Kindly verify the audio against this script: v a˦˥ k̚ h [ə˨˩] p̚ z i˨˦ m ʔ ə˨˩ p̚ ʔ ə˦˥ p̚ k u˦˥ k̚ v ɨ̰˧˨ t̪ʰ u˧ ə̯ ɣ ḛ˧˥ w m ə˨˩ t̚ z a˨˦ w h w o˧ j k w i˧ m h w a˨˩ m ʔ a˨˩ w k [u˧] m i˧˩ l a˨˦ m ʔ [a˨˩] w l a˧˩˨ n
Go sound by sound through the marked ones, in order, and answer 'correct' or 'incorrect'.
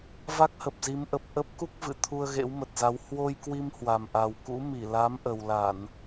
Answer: correct, incorrect, incorrect

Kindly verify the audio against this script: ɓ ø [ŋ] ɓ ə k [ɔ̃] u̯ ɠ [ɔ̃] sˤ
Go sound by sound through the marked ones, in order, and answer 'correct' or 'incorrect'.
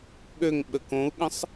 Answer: correct, incorrect, incorrect

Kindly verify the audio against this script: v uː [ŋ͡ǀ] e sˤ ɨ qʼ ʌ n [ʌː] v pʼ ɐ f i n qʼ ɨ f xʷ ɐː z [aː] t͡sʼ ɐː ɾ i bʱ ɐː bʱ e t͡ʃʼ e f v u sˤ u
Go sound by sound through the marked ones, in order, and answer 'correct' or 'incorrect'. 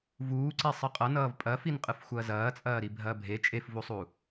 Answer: incorrect, correct, incorrect

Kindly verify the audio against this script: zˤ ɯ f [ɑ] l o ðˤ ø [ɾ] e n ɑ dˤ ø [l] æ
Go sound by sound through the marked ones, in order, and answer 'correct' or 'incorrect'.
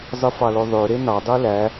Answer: correct, correct, correct

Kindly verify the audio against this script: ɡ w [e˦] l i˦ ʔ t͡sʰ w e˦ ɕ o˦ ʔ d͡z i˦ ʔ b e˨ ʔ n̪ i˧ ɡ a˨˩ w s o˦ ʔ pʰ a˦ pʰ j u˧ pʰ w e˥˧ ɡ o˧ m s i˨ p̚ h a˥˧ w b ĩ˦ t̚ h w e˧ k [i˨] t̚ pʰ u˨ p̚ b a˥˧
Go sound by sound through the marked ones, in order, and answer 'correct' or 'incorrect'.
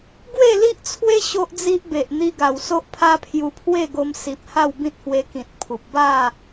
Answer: incorrect, incorrect

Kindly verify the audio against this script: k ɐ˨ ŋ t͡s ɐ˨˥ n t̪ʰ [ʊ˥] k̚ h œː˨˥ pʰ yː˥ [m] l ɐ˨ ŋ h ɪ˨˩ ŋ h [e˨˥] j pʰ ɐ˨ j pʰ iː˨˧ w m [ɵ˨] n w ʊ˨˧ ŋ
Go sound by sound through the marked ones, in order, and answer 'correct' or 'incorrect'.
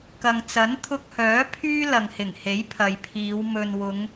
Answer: incorrect, incorrect, correct, correct

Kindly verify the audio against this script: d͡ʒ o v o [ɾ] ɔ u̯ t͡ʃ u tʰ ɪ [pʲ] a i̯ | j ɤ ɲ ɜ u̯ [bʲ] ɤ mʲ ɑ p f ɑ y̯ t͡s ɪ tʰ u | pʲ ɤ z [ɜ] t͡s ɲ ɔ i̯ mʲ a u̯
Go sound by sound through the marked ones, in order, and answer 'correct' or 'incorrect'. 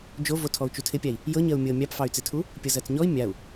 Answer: incorrect, correct, incorrect, correct

